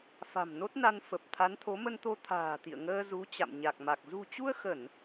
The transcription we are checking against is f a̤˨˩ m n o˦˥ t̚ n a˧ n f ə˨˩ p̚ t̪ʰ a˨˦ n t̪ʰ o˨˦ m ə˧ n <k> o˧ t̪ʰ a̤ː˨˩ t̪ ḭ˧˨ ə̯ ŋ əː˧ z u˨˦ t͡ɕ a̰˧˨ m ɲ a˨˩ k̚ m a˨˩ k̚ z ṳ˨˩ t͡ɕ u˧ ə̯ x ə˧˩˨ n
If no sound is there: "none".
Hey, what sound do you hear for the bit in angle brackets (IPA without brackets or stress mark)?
t̪